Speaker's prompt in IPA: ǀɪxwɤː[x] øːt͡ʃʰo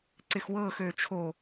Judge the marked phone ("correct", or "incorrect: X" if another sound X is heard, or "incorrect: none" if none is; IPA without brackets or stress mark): correct